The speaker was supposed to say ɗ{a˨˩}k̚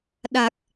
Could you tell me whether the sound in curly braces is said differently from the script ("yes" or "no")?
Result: no